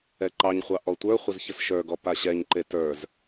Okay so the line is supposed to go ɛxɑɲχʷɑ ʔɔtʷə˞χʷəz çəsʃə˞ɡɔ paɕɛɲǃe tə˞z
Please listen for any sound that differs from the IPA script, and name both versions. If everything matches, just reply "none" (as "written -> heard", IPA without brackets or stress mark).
x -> ǃ